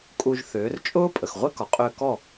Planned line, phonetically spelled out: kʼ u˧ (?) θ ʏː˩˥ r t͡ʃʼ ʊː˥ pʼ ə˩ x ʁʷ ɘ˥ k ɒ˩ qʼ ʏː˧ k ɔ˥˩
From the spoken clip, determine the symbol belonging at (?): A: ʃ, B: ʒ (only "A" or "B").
B